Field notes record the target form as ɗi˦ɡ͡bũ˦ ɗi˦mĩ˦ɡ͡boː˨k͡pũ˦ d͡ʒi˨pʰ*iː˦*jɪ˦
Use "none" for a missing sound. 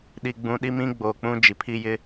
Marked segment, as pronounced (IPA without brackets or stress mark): i˦